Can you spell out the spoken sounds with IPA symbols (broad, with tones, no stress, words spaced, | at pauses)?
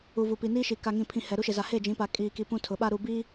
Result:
u˨ vu˨pi˨niː˦ʃi˨ ka˨ŋĩ˨pʰĩ˨ hɛ˨ɾu˦ʃe˨za˨ he˦˨d͡ʒĩ˨˦pa˨ kʼiː˨ki˨ pũ˦tʰʊ˨˦ɓa˦ ɾu˨bi˦